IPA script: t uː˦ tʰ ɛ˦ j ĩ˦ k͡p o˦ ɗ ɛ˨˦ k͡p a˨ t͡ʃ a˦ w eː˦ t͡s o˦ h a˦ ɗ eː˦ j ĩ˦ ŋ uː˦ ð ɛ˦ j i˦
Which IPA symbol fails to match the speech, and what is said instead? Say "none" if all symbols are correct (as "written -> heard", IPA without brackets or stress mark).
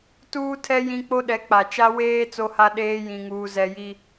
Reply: ð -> z